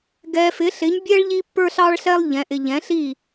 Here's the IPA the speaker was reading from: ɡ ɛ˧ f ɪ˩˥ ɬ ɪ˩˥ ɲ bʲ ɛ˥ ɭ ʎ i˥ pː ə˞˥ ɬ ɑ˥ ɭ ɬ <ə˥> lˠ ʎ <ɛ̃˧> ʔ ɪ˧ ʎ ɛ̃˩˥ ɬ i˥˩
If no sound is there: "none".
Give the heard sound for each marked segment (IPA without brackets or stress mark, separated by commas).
ɛ˥, ɛ̃˩˥